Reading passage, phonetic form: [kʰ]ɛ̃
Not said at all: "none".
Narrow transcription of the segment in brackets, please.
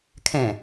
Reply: kʰ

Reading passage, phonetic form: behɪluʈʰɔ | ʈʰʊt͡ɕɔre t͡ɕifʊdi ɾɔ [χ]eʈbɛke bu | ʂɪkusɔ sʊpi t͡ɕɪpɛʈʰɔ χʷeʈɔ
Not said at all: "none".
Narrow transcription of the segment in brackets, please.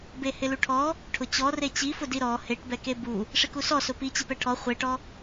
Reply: h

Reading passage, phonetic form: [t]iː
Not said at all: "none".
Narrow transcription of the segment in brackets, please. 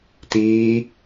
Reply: t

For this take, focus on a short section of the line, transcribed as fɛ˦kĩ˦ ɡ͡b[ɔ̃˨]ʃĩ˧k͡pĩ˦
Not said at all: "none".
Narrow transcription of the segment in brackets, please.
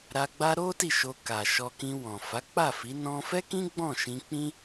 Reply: ɔ̃˦˨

